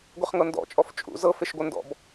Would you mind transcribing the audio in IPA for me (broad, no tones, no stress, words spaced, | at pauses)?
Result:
ɡʷeχŋɤndɔ̰t͡ʃʼɔf t͡ʃʼṵ zɤfeʃɡʷɤ ndɔ̰b